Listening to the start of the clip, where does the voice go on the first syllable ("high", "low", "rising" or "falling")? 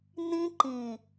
high